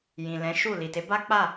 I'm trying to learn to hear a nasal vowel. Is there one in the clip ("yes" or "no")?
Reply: yes